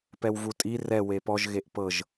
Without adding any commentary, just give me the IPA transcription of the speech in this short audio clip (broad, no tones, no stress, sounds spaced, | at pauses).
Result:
p ɛ w v u tʼ i r ɛ w e p ɔ ʒ ɣ e ʔ p ɤ ʒ